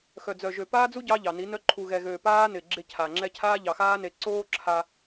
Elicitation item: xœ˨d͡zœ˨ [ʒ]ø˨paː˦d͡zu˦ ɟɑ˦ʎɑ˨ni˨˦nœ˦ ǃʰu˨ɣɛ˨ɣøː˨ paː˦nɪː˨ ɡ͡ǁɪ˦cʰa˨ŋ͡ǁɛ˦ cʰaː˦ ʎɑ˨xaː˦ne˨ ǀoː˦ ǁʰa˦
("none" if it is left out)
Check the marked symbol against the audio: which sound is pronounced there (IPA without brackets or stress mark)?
ʒ